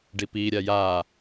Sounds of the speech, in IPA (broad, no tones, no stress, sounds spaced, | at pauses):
ɖ i p i ɾʲ a j a